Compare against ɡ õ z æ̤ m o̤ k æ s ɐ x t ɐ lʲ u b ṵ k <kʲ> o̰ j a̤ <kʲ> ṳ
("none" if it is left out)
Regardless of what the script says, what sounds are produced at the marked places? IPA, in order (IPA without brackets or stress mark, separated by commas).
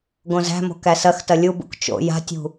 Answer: t͡ʃ, tʲ